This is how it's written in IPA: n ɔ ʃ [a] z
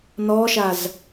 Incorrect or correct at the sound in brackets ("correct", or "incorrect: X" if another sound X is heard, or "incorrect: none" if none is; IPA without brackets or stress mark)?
correct